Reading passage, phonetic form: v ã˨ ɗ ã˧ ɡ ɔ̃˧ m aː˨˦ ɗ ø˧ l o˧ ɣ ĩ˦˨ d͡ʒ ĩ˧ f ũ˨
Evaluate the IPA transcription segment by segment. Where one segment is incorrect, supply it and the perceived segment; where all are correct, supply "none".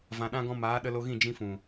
ø˧ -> ə˧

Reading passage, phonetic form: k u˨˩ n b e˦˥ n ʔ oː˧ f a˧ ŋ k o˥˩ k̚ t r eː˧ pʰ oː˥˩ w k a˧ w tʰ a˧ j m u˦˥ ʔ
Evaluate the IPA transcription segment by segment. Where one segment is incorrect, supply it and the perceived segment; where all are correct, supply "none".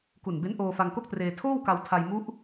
pʰ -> tʰ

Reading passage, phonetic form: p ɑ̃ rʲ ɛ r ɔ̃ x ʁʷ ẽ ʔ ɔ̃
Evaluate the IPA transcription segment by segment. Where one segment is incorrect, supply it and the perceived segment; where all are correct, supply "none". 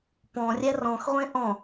ɑ̃ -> ɔ̃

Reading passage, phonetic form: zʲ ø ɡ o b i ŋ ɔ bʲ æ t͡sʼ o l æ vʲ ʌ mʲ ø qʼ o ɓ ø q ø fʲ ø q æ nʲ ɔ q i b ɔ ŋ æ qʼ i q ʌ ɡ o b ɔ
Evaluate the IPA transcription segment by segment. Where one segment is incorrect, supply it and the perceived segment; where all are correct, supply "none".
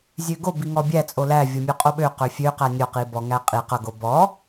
none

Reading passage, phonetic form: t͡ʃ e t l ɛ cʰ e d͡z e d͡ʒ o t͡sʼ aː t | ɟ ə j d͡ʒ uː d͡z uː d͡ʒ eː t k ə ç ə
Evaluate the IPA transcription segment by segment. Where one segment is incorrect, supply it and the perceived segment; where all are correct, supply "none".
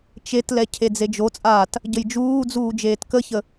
none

